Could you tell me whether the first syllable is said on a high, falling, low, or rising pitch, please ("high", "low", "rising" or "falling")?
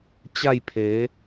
falling